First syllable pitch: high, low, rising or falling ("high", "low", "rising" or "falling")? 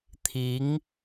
rising